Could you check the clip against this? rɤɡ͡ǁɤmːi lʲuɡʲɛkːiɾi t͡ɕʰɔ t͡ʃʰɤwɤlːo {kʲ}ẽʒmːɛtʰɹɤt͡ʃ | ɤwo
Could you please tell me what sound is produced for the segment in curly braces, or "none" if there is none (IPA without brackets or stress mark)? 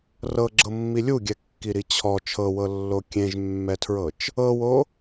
kʲ